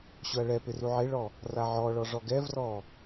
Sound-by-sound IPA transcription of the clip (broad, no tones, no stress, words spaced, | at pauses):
ɕʊɐ̯ɭɛpɪ ruʕeɭɔ | raʕɔɭɔ ʐɔɡɛvrɔ